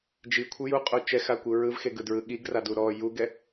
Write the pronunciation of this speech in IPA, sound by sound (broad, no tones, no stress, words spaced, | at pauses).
d͡ʒikʷʰɯ juqʼo t͡ʃɛxakʷɯ ɹɯvxeɡɯdɹɯ ɠiɡradu ɾɔ juɡɛ